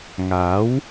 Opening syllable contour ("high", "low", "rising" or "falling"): rising